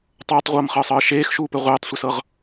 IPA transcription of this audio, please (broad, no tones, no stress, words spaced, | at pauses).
tˤɤːtˤʁʷɤːmχɤːsˤɤː ʃeːxʃuːpɘ ʁʷeːtˤsʷəsɤʁ